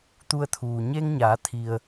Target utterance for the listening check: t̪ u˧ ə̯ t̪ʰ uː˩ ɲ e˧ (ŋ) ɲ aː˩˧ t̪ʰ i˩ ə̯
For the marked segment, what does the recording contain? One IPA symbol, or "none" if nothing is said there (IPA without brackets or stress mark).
ŋ